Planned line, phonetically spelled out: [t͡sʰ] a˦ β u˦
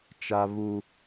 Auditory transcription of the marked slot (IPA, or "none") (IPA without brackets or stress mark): t͡ʃ